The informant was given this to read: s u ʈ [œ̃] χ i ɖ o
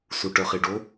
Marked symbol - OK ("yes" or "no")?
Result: no